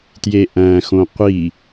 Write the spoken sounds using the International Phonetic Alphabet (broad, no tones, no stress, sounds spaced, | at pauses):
t j e ʔ æ̃ x õ qʷ i